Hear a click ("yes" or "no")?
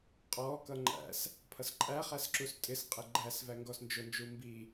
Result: yes